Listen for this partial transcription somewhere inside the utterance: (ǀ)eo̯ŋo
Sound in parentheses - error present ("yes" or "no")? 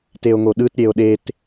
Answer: yes